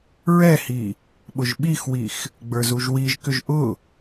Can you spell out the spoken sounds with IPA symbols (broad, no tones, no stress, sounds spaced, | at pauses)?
ɹ ɛ h i | ɓ ʊ ʒ ɓ i x w i x | ɡ͡b ə˞ z u ʒ w i ʒ k ʏ ʒ ʔ ʊ